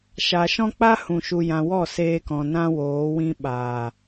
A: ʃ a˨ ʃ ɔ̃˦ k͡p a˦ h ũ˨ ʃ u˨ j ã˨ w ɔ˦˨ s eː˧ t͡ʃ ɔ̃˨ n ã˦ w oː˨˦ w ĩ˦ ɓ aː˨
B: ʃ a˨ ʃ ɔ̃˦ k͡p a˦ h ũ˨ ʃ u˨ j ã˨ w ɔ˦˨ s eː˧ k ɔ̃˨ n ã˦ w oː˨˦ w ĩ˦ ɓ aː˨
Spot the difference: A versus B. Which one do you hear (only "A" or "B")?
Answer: B